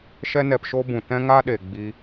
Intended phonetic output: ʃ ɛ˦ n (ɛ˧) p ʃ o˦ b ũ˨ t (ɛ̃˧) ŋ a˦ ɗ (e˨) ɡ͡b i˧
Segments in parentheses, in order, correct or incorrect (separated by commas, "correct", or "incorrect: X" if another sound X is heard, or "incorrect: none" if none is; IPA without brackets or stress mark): correct, incorrect: ɛ̃˦, correct